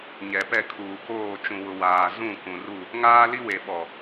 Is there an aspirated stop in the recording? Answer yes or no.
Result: yes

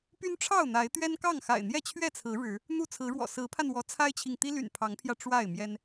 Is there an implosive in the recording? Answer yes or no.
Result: no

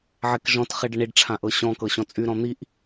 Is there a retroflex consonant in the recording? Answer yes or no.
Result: yes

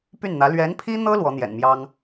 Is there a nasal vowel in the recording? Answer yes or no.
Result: no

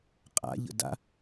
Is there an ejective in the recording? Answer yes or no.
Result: yes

